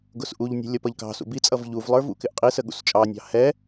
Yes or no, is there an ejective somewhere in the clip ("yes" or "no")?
yes